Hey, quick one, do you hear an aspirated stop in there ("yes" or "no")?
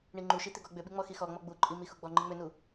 no